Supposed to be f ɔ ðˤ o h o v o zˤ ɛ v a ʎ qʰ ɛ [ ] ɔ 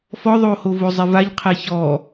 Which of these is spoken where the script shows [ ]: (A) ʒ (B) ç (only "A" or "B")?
B